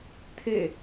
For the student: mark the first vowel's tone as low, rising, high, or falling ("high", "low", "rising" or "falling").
falling